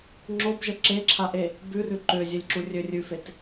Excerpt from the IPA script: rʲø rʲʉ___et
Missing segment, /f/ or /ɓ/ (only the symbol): f